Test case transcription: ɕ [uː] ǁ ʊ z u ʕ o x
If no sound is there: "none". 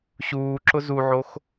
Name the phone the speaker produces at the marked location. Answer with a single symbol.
uː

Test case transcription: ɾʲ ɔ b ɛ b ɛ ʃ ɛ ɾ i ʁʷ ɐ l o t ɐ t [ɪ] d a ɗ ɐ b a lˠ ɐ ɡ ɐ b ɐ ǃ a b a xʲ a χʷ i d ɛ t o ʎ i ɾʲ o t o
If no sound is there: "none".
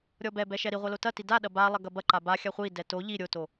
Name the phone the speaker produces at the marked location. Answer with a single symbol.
i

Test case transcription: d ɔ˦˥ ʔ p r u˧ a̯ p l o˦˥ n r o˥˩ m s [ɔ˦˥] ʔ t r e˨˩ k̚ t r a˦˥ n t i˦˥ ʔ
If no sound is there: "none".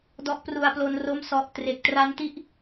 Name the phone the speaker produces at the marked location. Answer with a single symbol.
ɔ˦˥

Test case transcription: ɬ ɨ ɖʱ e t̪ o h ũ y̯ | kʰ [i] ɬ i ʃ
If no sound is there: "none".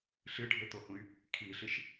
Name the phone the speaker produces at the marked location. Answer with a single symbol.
i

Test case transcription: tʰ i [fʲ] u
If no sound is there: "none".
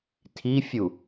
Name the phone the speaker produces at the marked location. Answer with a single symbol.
fʲ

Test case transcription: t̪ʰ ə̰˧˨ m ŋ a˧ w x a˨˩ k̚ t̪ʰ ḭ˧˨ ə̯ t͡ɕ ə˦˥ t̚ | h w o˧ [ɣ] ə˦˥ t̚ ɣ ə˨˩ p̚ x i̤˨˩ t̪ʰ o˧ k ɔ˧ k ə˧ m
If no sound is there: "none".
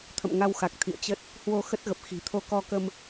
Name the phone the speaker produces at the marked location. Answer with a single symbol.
x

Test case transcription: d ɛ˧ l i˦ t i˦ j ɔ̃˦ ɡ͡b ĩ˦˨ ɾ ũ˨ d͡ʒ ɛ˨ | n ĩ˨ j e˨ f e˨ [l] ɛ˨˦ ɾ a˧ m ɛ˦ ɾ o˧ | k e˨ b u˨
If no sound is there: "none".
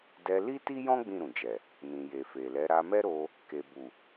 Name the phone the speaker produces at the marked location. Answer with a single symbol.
l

